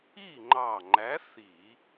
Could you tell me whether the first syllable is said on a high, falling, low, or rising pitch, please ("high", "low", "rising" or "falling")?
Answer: falling